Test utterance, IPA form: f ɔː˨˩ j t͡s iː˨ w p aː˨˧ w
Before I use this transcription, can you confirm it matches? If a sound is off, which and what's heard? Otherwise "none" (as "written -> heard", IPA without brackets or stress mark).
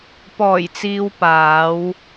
f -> p